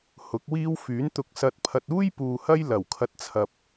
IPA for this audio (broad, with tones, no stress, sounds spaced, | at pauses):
h ʊ˨˥ k̚ w iː˥ w f yː˨˥ n t̪ ʊ˧ k̚ s ɐ˧ t̚ pʰ ɐ˧ t̚ uː˥ j p uː˨ h ɐ˥ j l ɐ˨˩ w kʰ ɐ˨˥ t̚ t͡sʰ ɐ˨ p̚